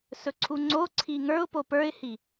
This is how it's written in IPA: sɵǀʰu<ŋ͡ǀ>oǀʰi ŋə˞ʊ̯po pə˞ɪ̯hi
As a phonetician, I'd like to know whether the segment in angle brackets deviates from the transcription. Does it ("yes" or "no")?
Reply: no